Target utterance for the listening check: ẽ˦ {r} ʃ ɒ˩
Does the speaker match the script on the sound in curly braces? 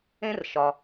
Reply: yes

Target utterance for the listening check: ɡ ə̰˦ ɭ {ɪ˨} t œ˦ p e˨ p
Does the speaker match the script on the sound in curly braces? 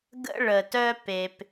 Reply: no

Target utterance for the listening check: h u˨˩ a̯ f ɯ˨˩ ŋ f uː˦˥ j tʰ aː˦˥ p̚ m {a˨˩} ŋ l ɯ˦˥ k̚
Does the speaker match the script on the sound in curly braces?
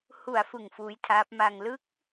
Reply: no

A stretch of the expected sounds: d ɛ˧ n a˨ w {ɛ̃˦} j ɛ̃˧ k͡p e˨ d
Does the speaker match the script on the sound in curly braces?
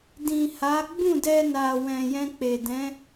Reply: no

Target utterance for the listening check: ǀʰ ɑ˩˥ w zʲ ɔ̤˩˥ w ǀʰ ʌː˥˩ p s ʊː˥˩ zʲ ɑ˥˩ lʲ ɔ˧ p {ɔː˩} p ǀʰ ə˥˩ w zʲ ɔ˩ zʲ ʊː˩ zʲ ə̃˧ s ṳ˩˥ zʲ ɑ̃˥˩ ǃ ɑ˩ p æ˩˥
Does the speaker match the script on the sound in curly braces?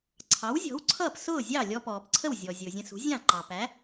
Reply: yes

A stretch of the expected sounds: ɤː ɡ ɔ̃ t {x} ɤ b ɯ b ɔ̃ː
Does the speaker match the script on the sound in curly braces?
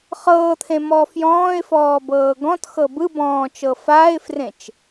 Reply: yes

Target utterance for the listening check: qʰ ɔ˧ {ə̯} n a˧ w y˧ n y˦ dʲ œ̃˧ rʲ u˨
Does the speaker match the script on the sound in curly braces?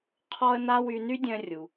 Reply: yes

